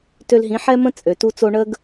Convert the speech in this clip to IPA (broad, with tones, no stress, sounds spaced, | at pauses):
t ø˧ l ɦ ĩ˩˥ ħ ɛ˥ m ə̃˥ t͡sʼ ø˩ t u˧ t͡s o˧ ɳ ə˥ ɡ